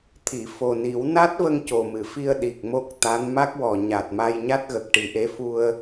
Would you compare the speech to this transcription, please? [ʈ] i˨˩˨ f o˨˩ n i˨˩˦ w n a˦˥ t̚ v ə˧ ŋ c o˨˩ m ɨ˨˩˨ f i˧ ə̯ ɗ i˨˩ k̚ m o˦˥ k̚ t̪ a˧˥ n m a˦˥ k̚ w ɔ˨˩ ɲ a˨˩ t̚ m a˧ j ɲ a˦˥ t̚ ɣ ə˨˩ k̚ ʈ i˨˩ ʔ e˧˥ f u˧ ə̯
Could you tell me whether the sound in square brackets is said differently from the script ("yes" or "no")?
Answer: yes